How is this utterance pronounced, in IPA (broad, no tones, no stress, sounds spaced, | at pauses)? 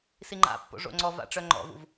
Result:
s i ŋ͡ǃ a̰ pː o̰ ʐ o̰ ŋ͡ǀ ɔ v a̰ ʈ͡ʂ œ ŋ͡ǃ ɔ̰ v ṵ v